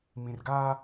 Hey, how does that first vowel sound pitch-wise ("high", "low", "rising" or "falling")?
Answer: low